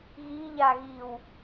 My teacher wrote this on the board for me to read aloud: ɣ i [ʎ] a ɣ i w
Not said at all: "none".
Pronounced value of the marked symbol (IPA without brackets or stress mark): ʎ